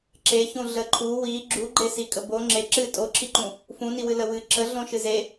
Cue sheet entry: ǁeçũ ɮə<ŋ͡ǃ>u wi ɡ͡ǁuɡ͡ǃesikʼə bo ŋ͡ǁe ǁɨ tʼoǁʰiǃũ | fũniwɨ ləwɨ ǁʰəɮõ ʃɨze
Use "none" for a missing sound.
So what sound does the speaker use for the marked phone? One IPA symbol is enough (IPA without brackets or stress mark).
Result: ǃʰ